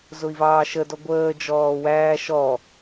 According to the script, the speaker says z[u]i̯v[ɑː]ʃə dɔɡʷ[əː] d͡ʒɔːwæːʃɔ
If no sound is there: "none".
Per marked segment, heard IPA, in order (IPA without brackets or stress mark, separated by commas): ʊ, ɑː, əː